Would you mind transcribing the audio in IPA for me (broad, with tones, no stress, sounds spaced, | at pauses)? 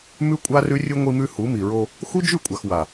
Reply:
m ʉ˦ kʷʼ a˦ r ʉ˦ rʲ ɨ˦ ŋʷ i˦ m ʉ˦ h u˨˦ m i˨ ɹ o˦ | x u˦ d͡ʒ ʉ˦˨ kʷʼ a˨ x w a˨